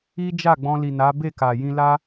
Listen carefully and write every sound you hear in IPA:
i˦ d͡ʒ a˦˨ ɡ͡b ɔ̃˧ l i˨ n a˨˦ b e˦˨ k a˨ j ĩ˧ l a˦

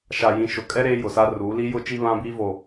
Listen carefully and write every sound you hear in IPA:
ʃ a˨ j ĩ˨ ʃ ʊ˨ kʼ ɛ˦ ɾ eː˦ j ʊ˨ s a˦ r uː˨˦ l i˦ j ʊ˦ t͡ʃ i˦ β ã˦ b iː˦ v o˨

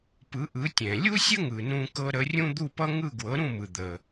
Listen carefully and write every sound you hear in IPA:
p ɯ˩˥ ʔ ɯ˩˥ tʲ ɛ̃˩ lʲ u˥ sʲ ə˥ ŋ ɯ˩ n ũ˧ k ɤ˧ ɾ ə˩˥ rʲ ũ˥ d̪ u˥˩ p ʌ˥ ŋ ɯ˥˩ ɡ w ɤ˩˥ ɾ ũ˥˩ m ɯ˩ d̪ ə˩

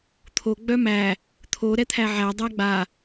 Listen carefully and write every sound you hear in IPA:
t̪ʰ o ɡ͡b œ m æ | t̪ʰ o ɾ ɛ t̪ʰ æ ʕ æ dˤ æ ɡ͡b a

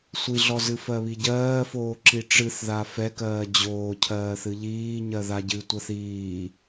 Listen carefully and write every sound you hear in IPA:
sʷ i ɮ ɔ z ɨ f ɜ β i ɟ ɜː f oː ǁ i ʈ͡ʂ ɨ θ ð a f ɛ k ɜː d͡ʑ oː cʰ ɜː θ ɨ ʎ iː ɲ ɜ ð a ɟ ɨ tʷ ɜ θ iː

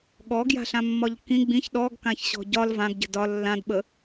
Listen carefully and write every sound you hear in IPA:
ɠ ɔ ɡ j a̤ ɬ ã mː ɒ ʎ k ĩ ɡ͡b ĩ ç ɗ ɔ ɡ k ã ç ɕ ɔ̤ ɟ ɒ l v ã ɡ ɟ ə̤ d ɒ lː ã d ɓ ə

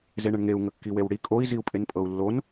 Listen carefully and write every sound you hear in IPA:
z e ɳ ə ɳ ŋ e u̯ ŋ ə kː i w e w ɽ i kʼ o i̯ z i u̯ pʼ e n pʼ ɤ u̯ lː o n

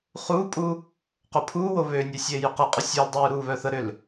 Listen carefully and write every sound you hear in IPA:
χ uː pʼ u | q o pʰ uː w o β ø nʲ ɛ sʲ eː j ʏ q ɛ qʼ ʏ sʲ ə˞ l dˤ uː ɾ uː β œ θ ə ɾ ʏ l

